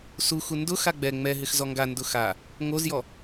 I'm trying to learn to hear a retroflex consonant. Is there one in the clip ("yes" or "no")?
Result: no